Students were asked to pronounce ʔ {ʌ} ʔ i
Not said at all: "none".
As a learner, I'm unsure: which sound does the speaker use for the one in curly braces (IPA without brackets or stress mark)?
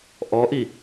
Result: ɔ